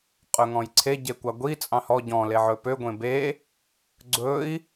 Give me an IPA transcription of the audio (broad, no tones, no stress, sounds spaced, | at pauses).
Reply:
qʼ ɵ ŋ ɔ̃ j ǀʰ e ɟ e kʷ ɑ ɡʷ i t͡sʼ ɑ̃ h ɔ ɟ ɔ̃ l e ʕ ɵ p ø ɡʷ ẽ b e | ɡ͡ǀ ɵ i̯